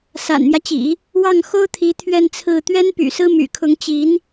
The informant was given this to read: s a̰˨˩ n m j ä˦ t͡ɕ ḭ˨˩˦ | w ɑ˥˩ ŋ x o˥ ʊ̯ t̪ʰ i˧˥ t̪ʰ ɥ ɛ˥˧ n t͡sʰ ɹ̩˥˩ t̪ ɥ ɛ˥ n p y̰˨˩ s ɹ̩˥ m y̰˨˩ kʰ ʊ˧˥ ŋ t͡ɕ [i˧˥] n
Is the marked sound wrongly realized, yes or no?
no